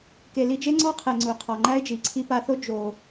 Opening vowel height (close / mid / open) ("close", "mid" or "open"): mid